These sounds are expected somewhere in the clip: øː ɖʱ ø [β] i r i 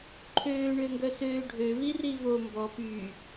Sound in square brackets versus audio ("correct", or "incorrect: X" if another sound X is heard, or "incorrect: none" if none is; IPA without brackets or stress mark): correct